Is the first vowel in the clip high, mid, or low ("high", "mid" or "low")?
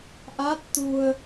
low